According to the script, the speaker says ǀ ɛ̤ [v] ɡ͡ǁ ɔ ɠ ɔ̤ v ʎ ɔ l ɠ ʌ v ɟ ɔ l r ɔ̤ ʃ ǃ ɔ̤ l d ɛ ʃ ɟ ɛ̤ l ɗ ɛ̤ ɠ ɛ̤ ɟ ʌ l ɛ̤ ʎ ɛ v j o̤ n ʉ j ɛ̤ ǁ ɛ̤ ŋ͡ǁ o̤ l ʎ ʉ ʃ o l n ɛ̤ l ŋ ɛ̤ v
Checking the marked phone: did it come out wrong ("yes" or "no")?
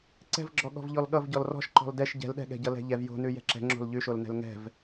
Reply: no